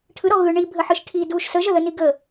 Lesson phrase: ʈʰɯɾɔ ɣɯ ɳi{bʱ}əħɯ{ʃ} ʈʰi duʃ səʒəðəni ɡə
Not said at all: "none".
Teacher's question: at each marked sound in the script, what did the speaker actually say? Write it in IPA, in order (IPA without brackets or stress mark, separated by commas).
bʱ, ʃ